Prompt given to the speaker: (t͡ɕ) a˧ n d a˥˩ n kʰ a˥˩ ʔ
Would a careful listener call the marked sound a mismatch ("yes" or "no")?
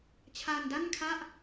yes